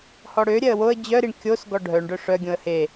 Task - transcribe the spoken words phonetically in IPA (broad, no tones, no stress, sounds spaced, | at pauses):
h ɔ ɽ ø ɾʲ ɛ ə̯ w o ə̯ d͡ʑ œ ɾ i ɳ kʲ o s ɡ ɔ ɖʱ œ ɳ ɖ œ ʂ œ ɡʲ õ ə̯ h e